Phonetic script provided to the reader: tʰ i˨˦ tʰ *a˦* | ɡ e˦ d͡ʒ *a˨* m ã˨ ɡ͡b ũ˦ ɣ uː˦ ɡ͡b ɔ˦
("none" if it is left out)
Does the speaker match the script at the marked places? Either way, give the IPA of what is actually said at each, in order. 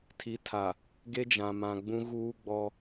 a˨, ã˨

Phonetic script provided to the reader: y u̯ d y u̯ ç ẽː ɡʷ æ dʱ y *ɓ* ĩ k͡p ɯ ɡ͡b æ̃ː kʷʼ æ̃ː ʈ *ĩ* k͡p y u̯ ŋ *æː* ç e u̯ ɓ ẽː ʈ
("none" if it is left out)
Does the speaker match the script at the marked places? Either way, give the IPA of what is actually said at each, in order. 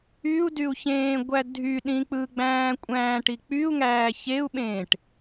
ɗ, i, æː

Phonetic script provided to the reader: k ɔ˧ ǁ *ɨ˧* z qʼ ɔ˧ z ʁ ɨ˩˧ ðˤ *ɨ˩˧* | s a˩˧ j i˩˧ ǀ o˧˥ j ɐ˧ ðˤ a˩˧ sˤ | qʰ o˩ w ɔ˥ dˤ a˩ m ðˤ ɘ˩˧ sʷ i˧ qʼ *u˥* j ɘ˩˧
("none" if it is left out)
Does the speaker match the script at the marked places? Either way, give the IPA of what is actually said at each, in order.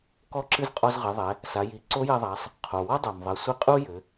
ɨ˧, ɛ˩˧, u˥

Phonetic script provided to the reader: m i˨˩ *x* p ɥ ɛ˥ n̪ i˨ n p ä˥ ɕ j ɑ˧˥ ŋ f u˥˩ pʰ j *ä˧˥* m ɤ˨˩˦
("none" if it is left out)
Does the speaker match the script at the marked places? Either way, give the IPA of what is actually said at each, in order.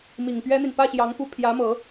ŋ, ä˧˥

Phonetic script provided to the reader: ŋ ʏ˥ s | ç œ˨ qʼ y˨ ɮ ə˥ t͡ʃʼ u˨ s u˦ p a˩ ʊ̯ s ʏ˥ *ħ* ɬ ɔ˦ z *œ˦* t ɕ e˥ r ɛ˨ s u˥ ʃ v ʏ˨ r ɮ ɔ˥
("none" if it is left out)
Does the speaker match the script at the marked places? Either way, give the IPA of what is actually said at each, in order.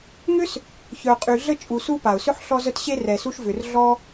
ħ, œ˦

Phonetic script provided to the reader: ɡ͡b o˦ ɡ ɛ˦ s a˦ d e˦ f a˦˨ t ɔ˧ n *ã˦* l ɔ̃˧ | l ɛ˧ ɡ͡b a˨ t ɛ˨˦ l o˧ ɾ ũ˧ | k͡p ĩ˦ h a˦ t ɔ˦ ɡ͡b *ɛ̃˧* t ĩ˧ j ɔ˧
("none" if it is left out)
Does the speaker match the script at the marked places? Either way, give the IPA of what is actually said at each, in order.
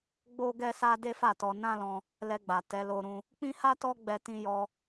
ã˦, ɛ˧

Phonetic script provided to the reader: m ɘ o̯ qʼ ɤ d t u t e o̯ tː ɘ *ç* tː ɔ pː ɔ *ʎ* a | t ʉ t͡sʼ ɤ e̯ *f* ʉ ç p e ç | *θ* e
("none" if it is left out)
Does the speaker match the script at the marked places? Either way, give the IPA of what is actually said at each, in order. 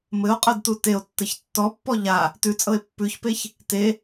ç, ʎ, pː, t

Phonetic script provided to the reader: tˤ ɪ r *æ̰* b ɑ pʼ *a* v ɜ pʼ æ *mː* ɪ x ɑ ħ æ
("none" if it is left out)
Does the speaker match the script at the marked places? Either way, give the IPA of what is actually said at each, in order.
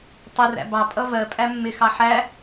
æ̰, ʌ, mː

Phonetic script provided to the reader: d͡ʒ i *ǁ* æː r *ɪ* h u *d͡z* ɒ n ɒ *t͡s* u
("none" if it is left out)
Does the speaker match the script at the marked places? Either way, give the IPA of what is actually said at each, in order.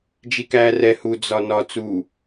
k, ɛ, d͡z, t͡s

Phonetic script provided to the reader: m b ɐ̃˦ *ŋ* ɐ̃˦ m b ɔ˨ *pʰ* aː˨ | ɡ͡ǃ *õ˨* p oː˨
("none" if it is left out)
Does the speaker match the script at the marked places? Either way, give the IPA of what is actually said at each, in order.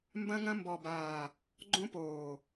ŋ, b, õ˦

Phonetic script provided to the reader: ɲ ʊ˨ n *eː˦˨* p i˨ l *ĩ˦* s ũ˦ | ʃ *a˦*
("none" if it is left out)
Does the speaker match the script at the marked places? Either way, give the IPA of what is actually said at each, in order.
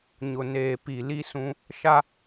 eː˨, i˦, a˦

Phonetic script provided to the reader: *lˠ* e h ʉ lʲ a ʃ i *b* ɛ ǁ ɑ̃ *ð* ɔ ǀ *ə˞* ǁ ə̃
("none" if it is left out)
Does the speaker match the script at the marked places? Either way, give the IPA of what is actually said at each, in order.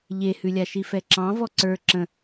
ʎ, f, v, ə˞

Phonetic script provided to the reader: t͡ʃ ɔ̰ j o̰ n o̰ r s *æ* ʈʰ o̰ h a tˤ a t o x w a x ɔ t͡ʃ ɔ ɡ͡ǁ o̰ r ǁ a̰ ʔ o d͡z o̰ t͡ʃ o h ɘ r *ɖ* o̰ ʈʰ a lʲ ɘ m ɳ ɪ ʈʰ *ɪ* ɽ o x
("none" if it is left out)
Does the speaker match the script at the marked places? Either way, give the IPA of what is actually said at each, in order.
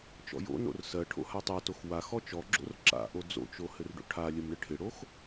ɜ, ɖ, ɪ

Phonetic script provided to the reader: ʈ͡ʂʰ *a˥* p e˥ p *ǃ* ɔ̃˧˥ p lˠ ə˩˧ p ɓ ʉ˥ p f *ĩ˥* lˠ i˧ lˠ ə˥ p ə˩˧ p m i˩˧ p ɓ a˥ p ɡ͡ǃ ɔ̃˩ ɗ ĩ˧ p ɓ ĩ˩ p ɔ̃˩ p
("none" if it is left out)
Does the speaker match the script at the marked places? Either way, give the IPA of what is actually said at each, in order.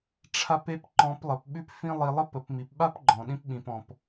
a˥, ǃ, ĩ˥

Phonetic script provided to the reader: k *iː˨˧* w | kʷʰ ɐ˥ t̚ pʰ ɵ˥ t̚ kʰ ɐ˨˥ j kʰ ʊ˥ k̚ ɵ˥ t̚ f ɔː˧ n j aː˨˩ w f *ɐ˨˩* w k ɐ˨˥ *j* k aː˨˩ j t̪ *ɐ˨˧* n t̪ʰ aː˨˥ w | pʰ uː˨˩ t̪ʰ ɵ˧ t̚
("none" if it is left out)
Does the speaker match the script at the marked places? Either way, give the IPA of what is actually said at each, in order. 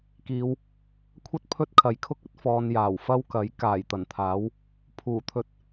iː˨˧, ɐ˥, j, ɐ˨˩

